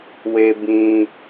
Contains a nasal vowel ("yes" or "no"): yes